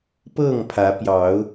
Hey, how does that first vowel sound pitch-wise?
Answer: falling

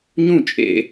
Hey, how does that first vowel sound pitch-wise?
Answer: falling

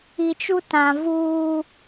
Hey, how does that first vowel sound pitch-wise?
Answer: low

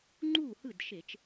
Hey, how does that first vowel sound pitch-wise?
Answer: falling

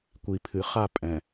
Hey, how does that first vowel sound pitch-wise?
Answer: low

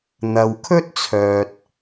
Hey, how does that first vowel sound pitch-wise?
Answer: low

